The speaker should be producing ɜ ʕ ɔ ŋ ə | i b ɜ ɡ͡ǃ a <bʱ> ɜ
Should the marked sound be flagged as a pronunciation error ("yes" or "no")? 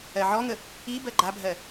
no